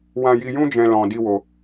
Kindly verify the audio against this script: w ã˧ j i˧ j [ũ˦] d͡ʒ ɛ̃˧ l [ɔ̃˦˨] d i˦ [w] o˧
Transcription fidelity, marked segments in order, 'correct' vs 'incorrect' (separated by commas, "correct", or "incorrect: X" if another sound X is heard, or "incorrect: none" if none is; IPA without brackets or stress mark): correct, incorrect: ɔ̃˧, correct